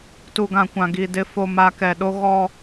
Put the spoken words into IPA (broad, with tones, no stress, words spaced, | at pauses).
tu˨ɡã˨kʷã˨ ɡi˨ dɪ˨fo˨ma˨ kɛ˨ɗo˦ ɣɔ˦